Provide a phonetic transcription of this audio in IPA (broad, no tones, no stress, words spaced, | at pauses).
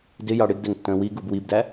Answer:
dɪjɑ ɽɪɡdɛŋtːə̃ː wiɡub wibdæ